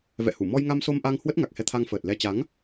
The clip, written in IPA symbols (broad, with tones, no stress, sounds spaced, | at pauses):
v ɛ̰˧˨ h u˧˩ m ɔ˧ j ŋ a˧ m s o˧ m ʔ a˧ ŋ h w ə˦˥ t̚ ŋ a˨˩ k̚ h ɛ˧ t̪ʰ a˧ ŋ f əː˨˩ t̚ l ɛ˧ t͡ɕ a˨˦ ŋ